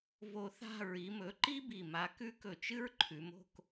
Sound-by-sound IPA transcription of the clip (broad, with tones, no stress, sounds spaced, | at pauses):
v o˧ θ a̤˥˧ ɹ i˩˧ m ɵ˩˧ ǃ i˥ b i˧˩ m a˧ k ʉ˥ k ɵ˧˩ t͡ʃ ɨ˥ ɹ ǃʰ ʉ˩˧ m o̤˥˧ k